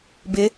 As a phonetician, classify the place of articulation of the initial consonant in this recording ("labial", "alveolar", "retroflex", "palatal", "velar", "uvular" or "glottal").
labial